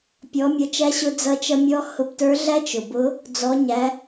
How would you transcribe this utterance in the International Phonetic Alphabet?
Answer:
pʲ ɔ˩˧ mʲ ʌ˩˧ t͡ʃ æ˧ ɕ ʊ˧ d͡z ʌ˧ t͡ʃ ʌ˧ mʲ ɔ˧˥ h ʊ˧ b t ə˞˧˥ ɮ æ˥ t͡ʃ ʊ˩ b ʊ˧˥ | d͡z ɔ˩˧ ɲ æ˩˧

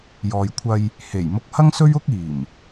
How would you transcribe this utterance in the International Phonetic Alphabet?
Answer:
j ɔː˨ j kʷʰ ɐ˧ j | h e˨˩ j m ʊ˧ k̚ h ɐ˥ ŋ s ɵ˥ ɥ ʊ˥ k̚ iː˨˩ m

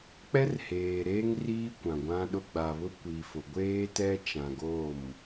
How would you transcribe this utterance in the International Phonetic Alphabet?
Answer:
k͡p ɛ˦ r h eː˨ ɾ eː˦ ŋ r iː˦ kʷ ã˨ ɡʷ ã˦ ɗ ʊ˦ ɡ͡b a˨ β ʊ˦ kʷ i˨ f ʊ˨ ɡʷ eː˦ t ɛ˦ t͡ʃ ã˨ ɡ o˦˨ m

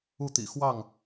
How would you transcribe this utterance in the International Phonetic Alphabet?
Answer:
u˥˨ t̪ ḭ˨˩ x w ɑ˥˨ ŋ

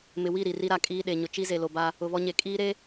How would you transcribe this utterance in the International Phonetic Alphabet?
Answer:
m ɪ˨ w i˦˨ ɾ i˨ r i˦ ɾ a˨ kʼ iː˦ ɗ e˨ ɲ ʊ˨ t͡ʃ i˦ z e˨ l o˨ b a˦ | ʊ˨ β ɔ˦ ɲ e˨ kʼ iː˦ ɾ e˦

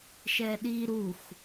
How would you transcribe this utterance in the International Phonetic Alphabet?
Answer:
ʃ ɛ ɗ i ɾ u x

